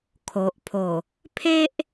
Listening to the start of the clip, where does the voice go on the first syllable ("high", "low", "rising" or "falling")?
low